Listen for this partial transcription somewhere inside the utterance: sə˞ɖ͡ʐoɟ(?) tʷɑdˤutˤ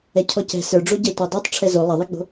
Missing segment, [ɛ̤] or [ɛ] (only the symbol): ɛ